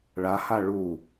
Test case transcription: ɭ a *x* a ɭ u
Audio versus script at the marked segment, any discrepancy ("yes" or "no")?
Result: yes